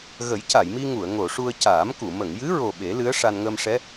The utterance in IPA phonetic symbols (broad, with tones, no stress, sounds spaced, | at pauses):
ɣ ə˨˩˦ j c a˨˩˨ j m i˧ ŋ u˨˩˨ ə̯ ŋ o˨˩˨ ʂ u˧ ə̯ c aː˨˩˦ m k u˨˩˨ m ə˨˩˨ ŋ j ɨ˧˥ ɹ o˨˩ ɓ e˨˩˦ l ɨ˧˥ ə̯ ʂ a˧ n ŋ əː˧ m ʂ ɛ˧˥